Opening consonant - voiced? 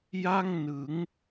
yes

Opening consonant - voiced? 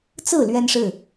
no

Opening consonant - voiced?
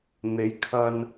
yes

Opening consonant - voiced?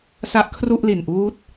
no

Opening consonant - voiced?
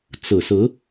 no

